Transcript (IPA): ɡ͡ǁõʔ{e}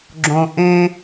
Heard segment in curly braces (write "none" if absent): ẽ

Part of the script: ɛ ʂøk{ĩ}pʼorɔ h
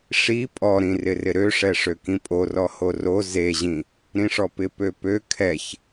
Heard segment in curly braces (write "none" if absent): ĩ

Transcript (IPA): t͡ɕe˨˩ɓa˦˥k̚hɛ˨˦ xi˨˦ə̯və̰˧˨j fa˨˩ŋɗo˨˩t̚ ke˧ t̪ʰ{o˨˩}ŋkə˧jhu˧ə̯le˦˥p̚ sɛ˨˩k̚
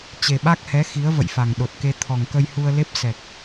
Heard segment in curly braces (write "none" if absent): ɔ˨˩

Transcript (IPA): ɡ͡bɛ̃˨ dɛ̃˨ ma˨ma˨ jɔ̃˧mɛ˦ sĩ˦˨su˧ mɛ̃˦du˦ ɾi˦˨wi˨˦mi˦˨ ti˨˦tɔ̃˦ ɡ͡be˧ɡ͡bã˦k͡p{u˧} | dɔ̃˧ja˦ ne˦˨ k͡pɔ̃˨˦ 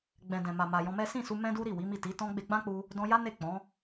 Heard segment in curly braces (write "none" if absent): u˧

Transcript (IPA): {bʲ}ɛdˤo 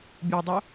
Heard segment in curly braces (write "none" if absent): bʲ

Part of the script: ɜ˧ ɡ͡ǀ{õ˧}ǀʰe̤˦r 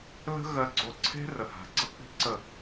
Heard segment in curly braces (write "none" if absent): o˧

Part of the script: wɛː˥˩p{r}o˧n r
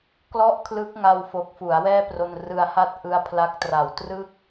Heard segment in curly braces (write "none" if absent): r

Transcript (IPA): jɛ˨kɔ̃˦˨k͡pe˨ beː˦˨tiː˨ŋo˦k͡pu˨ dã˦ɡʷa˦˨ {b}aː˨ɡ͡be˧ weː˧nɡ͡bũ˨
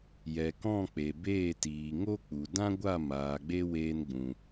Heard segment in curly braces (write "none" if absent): m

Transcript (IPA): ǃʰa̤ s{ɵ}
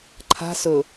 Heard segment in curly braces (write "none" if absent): ɵ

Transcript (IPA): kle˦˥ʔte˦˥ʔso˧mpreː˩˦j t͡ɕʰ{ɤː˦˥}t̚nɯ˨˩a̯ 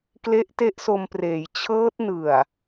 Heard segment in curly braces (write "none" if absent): ɤː˦˥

